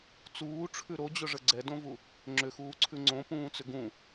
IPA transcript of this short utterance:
t͡s uː ʈ͡ʂʰ ʉ ɾ o d͡ʑ ʊ ʐ ə ɡ͡ǀ ɛ d õ v u | ŋ͡ǁ ʏ x uː ǀʰ ʉ ŋ͡ǀ õ p ũː t͡s ʏ ɡ ũ

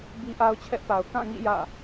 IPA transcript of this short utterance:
b i˦ ʔ a˦ ʊ̯ t͡ɕʰ ɛ˦ ʔ p a˨ ʊ̯ k ã˦˨ ŋ ḭ˦˨ j ä̰˦˨

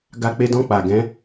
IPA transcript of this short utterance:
ɡ a˧ k͡p e˧ d ɔ̃˧ k͡p a˨ ɡ ɛ̃˨˦

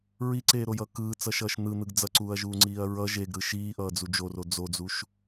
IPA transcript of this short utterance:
ɹ i ǀ eː ɾ o j ʌ k ɯː t͡s ʌ ʃ ʌː ʃ n̪ ɯ n̪ ɯ ɡ d͡z ʌ ǀ uː ɐ̯ ʒ uː ŋ͡ǀ iː ɐ̯ ɹ ʌ ʒ e ɡ ɾ ɯ ʃ iː ʔ ʌː d͡z u d͡ʒ o r o d͡z o d͡z u ʃ

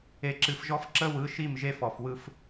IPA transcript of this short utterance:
e˨ ǁ ɨ˨ f ʒ ɔ˦ f ǁ ə˦ w ɯ˨˦ ʃ i˦˨ m ʒ e˦ f ɔ˨ f w ɯ˦ f

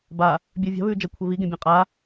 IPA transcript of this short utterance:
b a | bʲ ɵː vʲ a̤ β ʉː d͡ʒ ɐ kʷʰ e β i ɡ ẽ bʲ ã qʼ a

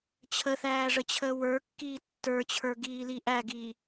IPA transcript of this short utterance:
t͡ɕʰ ə θ æː ʐ ə t͡ɕʰ əː w ə˞ kː iː tː ə˞ t͡ɕʰ ə˞ ɡ iː l i ʔ æ ɡ iː

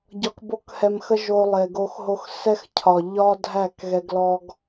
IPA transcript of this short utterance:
ɟ ɒ˧ k b o˦ k h ɛ˧ m x ə˦ ʒ o˧ lˠ e˨ ɡ o˧ x ɦ o˧ x s ɛ˦ x cʰ ɒ˨ ʎ ɒ˦ dʱ æ˦˨ k ɣ ɛ˧ ɡ l ɔ˦ ɡ

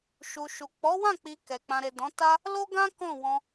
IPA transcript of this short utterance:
ʃ u˨ ʃ u˨ k͡p ɔ˨˦ w ã˦˨ k͡p i˨ k ɛ˨ k͡p ã˨ ɾ e˨ d ɔ̃˨˦ t a˦ | l o˦ ɡ ã˦ k ɔ̃˦˨ w ɔ̃˧

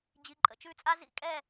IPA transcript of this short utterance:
d͡ʑ i˨ ǃʼ ə̰˨ t͡ʃ ʉ˦˨ t͡sʼ a˦ z ḭ˧ kʼ ɛ˦˨

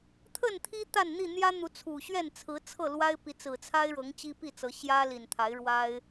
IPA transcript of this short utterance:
t̪ʰ ə˥˨ n t̪ʰ i˦ t̪ a˥˨ n n̪ i˥˨ n̪ j ä˦ n̪ u˨˦ t͡sʰ u˨˩ ɕ ɥ ɛ˥˨ n t͡sʰ ɹ̩˨˦ t͡sʰ ɤ˥˨ l w a˦ ɪ̯ p i˨˦ t͡s ɹ̩˨˩ t͡sʰ a˦ ɪ̯ ɻ ɤ˨˦ ŋ t͡ɕ i˦ p i˥˨ t͡s ɤ˨˦ ɕ j ä˦ l i˨˩ n t̪ʰ a˨˦ ɪ̯ ɻ w a˦ ɪ̯

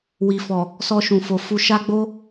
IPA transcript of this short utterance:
w i˨ f ɔ˨ | s ɔ˧ ʃ ũ˨ f o˨ f u˧ ʃ a˦ ɡ͡b o˦

